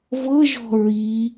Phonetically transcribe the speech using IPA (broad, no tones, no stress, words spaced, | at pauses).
vɤʒɔ̤ ɹi